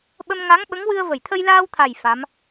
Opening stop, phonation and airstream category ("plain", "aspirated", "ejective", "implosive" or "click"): implosive